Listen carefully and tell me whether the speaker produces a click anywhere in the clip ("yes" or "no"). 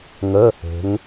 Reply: no